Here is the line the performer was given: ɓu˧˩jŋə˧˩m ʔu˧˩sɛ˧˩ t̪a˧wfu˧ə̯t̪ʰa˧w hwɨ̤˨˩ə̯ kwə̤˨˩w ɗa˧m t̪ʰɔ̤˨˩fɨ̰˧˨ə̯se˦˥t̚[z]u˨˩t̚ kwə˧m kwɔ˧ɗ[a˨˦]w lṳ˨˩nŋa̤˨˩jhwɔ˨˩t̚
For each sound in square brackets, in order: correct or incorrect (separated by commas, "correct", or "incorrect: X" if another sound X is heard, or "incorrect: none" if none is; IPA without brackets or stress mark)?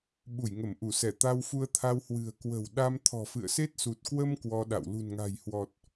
incorrect: s, incorrect: a̰˧˨